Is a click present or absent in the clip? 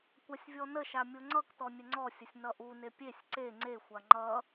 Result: present